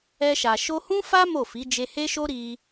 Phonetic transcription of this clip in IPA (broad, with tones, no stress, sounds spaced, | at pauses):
ɛ˧ ʃ a˨ ʃ o˧ h ũ˦ f a˦ m o˦˨ f i˨˦ d͡ʒ e˧ h e˦ ʃ o˦ ɾ i˧